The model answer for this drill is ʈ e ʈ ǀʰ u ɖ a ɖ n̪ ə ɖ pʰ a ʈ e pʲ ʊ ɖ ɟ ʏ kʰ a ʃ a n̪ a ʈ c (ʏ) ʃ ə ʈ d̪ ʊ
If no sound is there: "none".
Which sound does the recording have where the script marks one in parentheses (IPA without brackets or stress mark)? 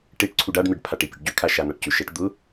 ʏ